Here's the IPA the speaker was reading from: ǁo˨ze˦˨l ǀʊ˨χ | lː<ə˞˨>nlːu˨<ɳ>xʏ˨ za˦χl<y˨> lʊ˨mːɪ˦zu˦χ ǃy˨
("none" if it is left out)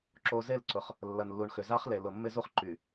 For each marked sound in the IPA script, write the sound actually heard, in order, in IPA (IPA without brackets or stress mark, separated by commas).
ɐ˨, ɳ, e˨